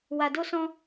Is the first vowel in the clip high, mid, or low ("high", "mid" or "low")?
low